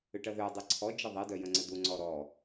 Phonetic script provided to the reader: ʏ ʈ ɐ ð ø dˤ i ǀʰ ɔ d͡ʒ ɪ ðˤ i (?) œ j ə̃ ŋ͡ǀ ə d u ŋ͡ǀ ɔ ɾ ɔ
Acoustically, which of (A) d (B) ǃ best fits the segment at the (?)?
A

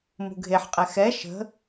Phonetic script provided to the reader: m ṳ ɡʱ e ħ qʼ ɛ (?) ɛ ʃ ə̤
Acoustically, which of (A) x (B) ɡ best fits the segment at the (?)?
A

